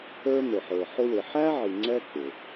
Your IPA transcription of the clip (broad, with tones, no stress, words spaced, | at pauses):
ə˞˥n̪ʊ˨ħə˞˨ ħʊ˥wɪ˨ ħæ˥ʕi˨ ŋ͡ǀɛ˥k͡pɪ˩